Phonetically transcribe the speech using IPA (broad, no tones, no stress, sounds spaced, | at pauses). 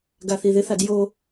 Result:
ɡ a θ i ð ɪ θ a d j o